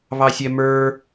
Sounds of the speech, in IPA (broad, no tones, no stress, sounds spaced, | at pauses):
β ɑ sʲ ɛ m ə˞